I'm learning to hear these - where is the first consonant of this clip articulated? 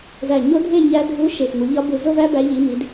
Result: tongue tip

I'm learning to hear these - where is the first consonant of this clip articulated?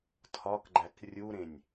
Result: tongue tip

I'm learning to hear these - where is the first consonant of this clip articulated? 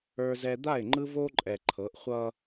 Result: tongue tip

